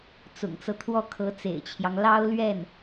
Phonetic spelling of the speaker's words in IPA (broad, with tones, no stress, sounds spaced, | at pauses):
t͡s ʊ̰˨˩ ŋ t͡s ɤ˦ t̪ʰ w ɔ˥˩ kʰ ɤ˧˥ t͡s ḛ˨˩ ɪ̯ t͡ɕʰ j ɑ˦ ŋ l ɑ˥ ʊ̯ l ɥ ɛ˥˩ n